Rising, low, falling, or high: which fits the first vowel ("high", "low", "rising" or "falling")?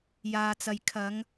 low